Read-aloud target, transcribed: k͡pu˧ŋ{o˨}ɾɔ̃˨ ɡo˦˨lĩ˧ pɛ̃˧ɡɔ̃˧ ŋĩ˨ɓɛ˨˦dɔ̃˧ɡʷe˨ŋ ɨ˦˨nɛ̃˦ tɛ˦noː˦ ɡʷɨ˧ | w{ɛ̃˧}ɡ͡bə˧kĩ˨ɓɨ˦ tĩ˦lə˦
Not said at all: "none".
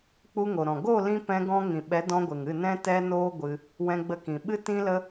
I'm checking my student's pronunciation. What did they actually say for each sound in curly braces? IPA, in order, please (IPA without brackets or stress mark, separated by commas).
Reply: o˨, ɛ̃˧